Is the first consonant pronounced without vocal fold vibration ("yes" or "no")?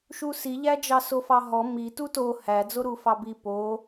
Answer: yes